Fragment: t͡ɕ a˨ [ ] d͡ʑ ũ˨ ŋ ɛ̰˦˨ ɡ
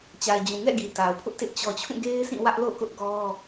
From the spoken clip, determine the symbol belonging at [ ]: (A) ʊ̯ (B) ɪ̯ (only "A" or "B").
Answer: B